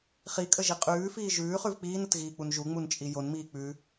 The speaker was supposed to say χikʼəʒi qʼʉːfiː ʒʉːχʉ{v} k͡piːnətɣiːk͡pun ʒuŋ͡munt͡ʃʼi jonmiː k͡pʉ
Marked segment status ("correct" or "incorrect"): correct